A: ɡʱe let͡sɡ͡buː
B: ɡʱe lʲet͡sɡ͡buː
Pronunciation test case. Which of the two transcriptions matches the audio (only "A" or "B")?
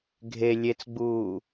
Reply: B